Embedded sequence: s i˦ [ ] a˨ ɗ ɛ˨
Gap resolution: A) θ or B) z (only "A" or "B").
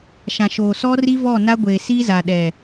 B